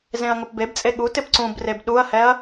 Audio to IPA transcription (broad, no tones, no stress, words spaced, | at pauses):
zẽɐ̯ŋʊpbebt͡sʼe ɠu tɪpǀũbreb ɗuɐ̯hɛɐ̯